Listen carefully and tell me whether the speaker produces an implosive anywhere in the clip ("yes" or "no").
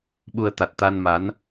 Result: yes